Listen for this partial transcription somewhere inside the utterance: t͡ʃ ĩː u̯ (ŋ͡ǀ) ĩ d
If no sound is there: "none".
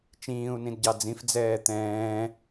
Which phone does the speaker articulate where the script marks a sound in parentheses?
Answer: n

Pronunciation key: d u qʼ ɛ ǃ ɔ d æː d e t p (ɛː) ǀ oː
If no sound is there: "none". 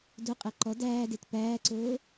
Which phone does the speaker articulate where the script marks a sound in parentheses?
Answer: æː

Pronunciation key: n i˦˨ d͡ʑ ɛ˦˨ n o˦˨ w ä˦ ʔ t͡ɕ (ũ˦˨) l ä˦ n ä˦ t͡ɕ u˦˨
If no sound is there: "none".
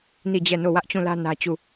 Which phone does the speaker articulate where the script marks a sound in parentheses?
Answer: ũ˦˨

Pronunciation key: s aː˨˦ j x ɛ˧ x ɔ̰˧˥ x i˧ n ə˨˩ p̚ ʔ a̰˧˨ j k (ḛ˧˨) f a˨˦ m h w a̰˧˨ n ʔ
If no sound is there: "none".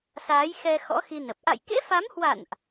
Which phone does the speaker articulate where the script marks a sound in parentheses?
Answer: ḛ˧˥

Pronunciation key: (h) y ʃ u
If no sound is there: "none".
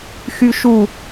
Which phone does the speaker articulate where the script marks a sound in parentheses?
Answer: x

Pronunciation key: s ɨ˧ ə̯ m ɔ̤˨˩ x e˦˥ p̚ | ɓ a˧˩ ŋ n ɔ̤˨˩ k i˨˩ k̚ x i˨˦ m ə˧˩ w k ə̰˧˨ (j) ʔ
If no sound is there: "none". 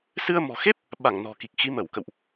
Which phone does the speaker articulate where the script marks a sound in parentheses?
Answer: w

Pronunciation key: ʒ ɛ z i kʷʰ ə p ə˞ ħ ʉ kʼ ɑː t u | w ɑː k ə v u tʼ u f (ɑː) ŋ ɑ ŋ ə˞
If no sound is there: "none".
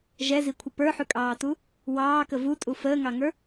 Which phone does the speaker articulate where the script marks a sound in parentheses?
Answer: əː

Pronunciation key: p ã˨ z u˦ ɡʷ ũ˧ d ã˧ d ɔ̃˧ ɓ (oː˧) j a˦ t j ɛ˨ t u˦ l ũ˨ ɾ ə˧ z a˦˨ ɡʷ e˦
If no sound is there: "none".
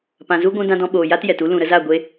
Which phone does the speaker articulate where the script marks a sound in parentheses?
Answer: oː˨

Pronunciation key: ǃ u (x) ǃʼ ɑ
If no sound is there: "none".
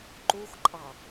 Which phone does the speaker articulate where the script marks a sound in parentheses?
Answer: x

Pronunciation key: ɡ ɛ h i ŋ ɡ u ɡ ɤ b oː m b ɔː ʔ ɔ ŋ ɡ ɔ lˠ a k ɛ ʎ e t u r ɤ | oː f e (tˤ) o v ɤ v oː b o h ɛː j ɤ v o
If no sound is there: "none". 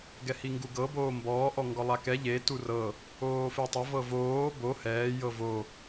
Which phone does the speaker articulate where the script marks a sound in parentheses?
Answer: tˤ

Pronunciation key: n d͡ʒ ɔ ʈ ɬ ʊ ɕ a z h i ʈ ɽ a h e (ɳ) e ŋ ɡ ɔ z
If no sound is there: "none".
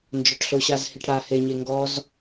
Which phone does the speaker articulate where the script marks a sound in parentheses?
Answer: ɲ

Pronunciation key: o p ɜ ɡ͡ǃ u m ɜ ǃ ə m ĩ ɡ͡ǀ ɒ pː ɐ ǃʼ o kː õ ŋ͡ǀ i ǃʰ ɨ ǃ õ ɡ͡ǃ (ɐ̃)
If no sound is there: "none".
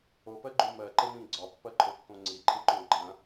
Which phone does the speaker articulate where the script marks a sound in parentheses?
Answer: ɐ̃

